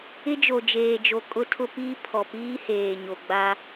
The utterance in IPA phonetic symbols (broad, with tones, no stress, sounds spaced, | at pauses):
ɪ˦ d͡ʒ o˨ d͡ʒ eː˨ d͡ʒ o˨ kʼ ʊ˦ tʰ ʊ˦ p iː˦ pʰ ɔ˨ p iː˦ h eː˨ ɲ o˨ ɡ͡b a˦